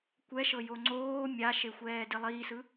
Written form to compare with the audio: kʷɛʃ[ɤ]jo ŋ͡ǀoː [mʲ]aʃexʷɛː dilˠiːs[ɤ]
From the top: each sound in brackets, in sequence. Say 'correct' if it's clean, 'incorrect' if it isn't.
correct, correct, incorrect: ɯ

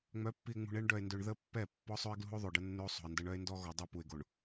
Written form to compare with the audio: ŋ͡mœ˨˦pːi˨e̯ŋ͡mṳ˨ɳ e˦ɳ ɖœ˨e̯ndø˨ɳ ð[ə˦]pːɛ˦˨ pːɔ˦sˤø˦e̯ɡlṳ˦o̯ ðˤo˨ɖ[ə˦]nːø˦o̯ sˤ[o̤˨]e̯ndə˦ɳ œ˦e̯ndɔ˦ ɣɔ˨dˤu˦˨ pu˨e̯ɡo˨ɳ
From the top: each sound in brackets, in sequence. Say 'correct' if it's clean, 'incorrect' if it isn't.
correct, correct, correct

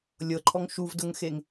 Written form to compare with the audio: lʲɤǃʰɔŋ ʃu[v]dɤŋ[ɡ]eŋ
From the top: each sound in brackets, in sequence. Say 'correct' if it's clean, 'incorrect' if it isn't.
correct, incorrect: x

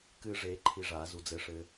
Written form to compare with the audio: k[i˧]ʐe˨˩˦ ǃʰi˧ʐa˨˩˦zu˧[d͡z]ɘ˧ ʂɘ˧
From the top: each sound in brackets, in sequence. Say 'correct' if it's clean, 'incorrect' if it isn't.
incorrect: ɨ˧, correct

